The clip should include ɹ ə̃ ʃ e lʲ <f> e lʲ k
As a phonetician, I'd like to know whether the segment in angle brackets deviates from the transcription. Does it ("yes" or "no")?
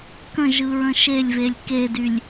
yes